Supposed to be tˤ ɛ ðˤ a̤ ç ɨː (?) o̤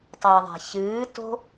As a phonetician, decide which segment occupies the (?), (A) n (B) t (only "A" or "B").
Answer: B